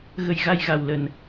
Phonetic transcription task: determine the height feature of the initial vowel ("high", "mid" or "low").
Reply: mid